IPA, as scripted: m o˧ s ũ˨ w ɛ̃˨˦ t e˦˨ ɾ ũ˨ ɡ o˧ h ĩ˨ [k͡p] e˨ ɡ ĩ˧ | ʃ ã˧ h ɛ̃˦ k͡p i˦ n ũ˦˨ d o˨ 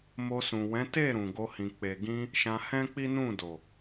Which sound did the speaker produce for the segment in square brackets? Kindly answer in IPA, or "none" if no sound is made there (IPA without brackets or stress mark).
k͡p